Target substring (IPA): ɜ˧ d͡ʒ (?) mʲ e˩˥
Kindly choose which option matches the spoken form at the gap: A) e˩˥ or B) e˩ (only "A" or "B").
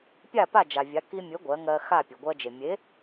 B